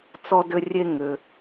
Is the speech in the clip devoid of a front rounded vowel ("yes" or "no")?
no